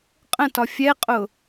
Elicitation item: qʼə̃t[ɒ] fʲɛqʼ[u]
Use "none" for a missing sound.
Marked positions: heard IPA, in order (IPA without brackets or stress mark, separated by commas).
ɒ, ʊ